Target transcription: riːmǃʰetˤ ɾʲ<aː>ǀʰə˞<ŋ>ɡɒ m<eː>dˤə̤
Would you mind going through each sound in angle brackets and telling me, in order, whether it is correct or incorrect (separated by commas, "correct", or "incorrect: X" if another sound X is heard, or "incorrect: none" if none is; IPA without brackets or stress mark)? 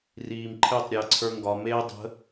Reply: incorrect: əː, correct, correct